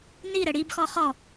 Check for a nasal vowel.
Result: absent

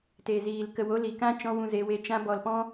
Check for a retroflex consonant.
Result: absent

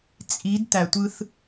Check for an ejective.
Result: present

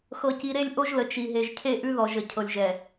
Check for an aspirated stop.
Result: present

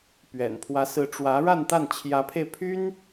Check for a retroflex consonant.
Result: present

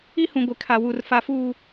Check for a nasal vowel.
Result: present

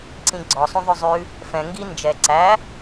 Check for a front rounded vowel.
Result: present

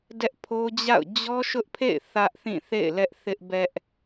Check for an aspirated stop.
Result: present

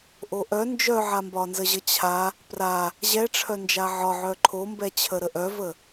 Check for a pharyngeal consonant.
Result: present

